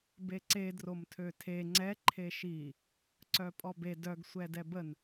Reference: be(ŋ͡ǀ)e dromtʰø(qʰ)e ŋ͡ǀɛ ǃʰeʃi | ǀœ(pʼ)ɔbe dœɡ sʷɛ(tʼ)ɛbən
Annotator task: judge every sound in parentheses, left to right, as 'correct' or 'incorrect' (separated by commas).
incorrect, incorrect, correct, incorrect